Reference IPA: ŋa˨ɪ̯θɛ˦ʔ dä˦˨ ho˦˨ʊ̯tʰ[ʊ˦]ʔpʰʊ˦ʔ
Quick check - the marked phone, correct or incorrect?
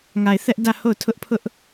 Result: correct